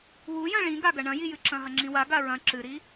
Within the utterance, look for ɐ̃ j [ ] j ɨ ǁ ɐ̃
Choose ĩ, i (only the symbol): i